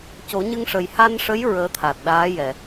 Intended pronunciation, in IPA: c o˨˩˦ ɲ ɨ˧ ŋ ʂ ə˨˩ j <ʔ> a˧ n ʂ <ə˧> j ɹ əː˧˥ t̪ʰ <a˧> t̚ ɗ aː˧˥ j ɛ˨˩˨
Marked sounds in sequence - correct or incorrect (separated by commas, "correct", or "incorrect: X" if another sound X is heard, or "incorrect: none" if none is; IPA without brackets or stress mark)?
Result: incorrect: h, incorrect: ə˧˥, incorrect: a˨˩